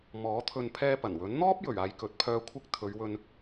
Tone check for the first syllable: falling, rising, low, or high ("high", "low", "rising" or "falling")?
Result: rising